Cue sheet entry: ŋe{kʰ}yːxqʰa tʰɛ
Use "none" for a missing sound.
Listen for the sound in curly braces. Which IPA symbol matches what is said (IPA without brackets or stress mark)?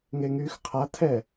ŋ